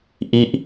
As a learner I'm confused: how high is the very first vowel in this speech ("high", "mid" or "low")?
high